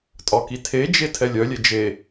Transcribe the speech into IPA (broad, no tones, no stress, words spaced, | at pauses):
tʼɒkitʰed͡ʒe tʰɛlʲœlʲe d͡ʒe